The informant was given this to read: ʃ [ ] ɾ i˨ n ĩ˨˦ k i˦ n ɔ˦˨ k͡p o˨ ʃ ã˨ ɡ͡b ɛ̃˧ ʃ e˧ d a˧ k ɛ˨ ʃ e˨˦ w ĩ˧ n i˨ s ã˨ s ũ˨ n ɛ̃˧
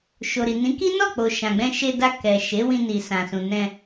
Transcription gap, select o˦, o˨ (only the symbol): o˨